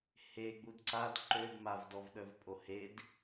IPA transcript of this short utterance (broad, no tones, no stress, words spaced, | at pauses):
heɡ͡bud ǀad ǃøbmav dɔvɗœvpʼohed